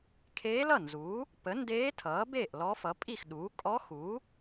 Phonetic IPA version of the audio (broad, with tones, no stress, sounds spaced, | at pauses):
kʰ eː˧˥ l ʌ˥˩ n z uː˩˥ | p ə˩˥ n d eː˧˥ tʰ ʌː˩˥ b eː˥˩ ʔ l ɔ˧˥ f ʌ˩˥ pʼ i˥˩ x ɗ uː˩˥ kʼ ɔ˧˥ x uː˩˥